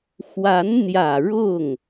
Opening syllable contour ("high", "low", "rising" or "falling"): rising